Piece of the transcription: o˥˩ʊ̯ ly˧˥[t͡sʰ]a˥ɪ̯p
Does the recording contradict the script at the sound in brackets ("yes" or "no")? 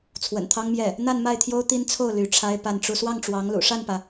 yes